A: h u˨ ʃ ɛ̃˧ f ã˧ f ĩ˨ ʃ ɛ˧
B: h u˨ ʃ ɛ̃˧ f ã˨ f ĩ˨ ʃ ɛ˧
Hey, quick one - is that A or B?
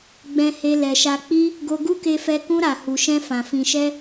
B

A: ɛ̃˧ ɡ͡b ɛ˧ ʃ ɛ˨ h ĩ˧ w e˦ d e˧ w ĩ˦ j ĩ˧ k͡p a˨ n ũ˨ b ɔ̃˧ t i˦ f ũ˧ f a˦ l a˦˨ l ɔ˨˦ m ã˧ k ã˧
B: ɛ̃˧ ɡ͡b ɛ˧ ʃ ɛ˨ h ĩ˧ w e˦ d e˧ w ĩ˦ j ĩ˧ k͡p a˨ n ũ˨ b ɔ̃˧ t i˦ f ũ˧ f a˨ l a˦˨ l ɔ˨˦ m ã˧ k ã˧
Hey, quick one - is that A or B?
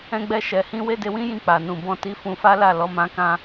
A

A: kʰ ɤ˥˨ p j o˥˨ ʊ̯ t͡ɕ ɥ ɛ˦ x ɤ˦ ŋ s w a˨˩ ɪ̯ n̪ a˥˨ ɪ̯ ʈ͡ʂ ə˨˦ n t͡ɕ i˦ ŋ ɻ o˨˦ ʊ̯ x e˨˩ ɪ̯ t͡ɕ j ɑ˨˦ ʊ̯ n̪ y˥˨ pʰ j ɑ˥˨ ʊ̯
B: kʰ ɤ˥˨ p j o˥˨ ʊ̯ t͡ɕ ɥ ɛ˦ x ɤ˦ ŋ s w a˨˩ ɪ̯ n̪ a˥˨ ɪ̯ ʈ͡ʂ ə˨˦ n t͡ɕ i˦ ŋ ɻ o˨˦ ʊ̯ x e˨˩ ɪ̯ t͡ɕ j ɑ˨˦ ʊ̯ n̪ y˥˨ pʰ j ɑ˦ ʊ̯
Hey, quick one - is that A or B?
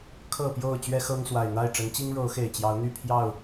A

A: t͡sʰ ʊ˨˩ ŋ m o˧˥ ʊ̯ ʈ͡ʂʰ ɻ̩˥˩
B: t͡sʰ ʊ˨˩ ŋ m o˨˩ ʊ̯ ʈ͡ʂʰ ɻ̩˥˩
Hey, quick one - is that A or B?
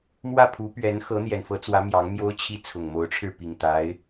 A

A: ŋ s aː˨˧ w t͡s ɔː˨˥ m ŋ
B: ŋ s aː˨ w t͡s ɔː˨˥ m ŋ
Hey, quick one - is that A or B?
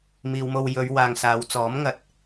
A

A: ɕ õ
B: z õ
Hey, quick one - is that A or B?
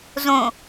B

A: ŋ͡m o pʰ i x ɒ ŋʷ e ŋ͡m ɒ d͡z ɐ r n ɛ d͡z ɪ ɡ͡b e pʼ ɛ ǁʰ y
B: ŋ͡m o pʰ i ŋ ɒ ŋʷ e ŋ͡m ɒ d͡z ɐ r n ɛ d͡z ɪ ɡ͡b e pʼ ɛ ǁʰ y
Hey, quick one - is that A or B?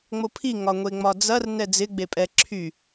B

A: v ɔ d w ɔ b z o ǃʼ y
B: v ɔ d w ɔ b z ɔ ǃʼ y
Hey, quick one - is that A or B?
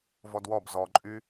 B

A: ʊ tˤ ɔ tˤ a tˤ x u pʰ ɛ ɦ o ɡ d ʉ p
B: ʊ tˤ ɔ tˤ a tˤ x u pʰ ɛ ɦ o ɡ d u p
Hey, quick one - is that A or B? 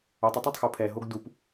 B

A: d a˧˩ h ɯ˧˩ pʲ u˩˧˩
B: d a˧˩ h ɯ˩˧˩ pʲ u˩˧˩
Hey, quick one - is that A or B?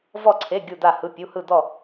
B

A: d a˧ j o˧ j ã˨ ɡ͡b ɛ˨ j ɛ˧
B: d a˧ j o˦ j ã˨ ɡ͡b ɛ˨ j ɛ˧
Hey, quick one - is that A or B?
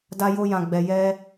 A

